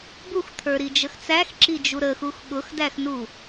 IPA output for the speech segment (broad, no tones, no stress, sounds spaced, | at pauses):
b u x t̪ʰ ə˞ ɾ i d͡ʒ ə x t͡s æ x ǁ i d͡ʒ u ɾ ə x u x ɠ ʊ x d æ x n u